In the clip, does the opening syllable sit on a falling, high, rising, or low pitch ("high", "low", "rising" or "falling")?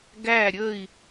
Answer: falling